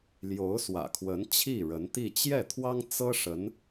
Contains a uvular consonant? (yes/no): no